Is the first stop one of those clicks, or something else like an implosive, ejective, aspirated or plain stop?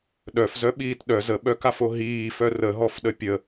implosive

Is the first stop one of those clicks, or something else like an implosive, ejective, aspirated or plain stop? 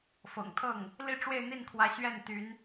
aspirated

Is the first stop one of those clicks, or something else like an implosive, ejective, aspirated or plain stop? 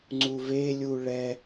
click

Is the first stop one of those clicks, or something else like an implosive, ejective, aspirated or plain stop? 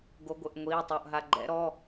plain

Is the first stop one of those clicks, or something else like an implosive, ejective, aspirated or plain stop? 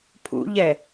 aspirated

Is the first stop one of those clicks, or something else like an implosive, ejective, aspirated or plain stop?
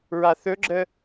click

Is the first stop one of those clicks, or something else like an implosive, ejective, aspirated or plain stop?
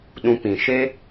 implosive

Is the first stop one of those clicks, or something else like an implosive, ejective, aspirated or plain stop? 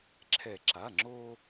click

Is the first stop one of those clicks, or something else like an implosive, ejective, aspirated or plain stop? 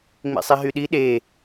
implosive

